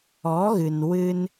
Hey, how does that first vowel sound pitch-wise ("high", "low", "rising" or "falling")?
rising